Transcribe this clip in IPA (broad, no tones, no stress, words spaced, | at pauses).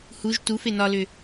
huʒ tuf enɒlʏ